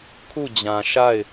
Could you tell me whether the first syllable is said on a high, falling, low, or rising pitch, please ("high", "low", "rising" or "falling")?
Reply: falling